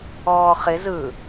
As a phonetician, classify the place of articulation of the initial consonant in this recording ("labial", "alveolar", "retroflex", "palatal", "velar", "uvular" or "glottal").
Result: uvular